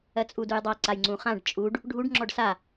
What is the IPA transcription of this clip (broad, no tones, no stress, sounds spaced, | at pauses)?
ɜ t͡sʼ u d u j dˤ a ǀ a j ŋ͡ǀ ũ χ ã ɖ t͡ʃʼ u ɖ | ɖʱ u ɖ ŋ͡ǁ ɔ ɖ s a